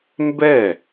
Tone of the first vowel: falling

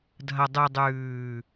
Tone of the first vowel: low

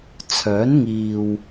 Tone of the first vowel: rising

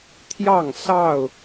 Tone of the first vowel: falling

